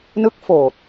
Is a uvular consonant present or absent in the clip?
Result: absent